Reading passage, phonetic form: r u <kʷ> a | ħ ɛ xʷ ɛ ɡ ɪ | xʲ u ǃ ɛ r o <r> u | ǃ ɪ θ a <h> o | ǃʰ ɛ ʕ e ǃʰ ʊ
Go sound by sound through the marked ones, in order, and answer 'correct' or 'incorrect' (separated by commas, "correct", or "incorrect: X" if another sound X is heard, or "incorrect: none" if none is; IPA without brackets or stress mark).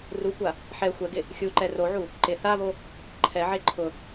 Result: correct, incorrect: ʕ, incorrect: β